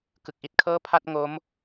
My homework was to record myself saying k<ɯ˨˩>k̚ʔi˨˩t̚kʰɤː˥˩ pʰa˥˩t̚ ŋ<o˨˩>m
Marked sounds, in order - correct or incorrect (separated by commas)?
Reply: correct, incorrect